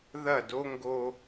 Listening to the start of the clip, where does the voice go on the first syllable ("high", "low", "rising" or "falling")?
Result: falling